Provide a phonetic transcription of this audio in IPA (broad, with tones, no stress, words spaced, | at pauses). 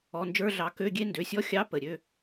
ɔ˩˧˩nd͡ʒə˞˧˥˧ɮɑ˨˦ kø˧˥˧ɡʲe˦˥ ndø˩˧˩sʲɔ˦˥xʲɑ˧˥˧ pə˩˧˩ɾʲø˧˥˧